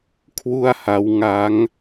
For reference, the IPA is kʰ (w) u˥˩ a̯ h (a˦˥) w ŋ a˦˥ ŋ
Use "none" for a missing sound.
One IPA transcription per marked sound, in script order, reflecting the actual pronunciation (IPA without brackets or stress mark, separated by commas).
w, a˦˥